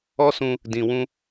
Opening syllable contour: high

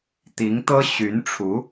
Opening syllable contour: rising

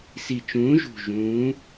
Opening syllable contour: low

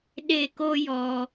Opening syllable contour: falling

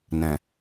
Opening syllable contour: low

